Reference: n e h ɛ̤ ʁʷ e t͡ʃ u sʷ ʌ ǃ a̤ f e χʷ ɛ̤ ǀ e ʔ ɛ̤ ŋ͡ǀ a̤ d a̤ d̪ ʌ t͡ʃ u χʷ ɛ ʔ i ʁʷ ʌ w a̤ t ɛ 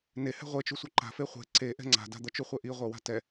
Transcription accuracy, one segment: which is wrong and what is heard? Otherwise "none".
none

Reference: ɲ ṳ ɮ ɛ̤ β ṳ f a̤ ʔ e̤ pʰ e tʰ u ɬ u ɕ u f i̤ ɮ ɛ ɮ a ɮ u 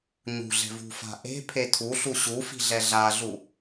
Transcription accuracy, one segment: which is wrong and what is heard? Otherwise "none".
β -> v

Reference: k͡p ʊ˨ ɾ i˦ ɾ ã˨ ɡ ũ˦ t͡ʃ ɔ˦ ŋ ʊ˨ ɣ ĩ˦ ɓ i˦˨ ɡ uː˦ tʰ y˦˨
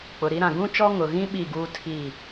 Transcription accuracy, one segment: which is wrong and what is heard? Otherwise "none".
y˦˨ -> i˦˨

